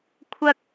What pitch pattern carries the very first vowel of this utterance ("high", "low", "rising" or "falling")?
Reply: high